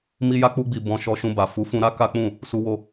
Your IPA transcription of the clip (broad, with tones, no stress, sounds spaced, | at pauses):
m i˧ j a˧ k͡p u˧ ɡ͡b i˨ b ɔ̃˧ ʃ ɔ˧ ʃ ũ˧ b a˨ f u˨˦ f ũ˧ ɾ a˦ k a˦ k͡p ũ˦˨ | s u˧ w o˧